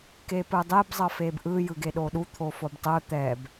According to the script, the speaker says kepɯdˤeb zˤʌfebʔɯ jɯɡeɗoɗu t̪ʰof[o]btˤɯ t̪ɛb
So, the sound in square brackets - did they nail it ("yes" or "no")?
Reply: yes